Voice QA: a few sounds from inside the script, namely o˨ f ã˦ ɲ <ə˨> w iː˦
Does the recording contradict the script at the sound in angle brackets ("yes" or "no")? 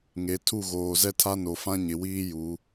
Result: yes